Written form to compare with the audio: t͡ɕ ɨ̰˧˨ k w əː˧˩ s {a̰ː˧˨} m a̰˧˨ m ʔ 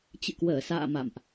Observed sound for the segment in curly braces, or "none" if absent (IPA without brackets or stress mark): a̰ː˧˨